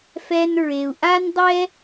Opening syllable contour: high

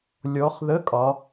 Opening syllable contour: rising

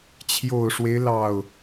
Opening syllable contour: low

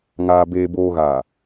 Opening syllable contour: low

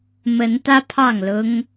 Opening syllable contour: rising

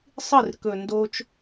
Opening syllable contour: falling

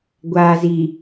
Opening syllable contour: low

